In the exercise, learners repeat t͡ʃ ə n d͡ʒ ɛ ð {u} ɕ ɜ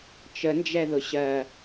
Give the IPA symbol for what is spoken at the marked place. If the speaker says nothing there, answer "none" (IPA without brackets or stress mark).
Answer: ʊ